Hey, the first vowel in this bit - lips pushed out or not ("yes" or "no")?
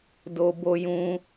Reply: yes